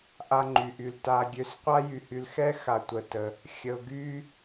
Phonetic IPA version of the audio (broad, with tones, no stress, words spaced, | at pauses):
ʔa˥ŋ͡ǃy˧ʔy˧l ta˧ɡʲø˧s qʷa˥jy˧hy˧lxɛ˥ xa˧ tʷə˧tə˧ | xʲə˧ʊ̯ɡy˥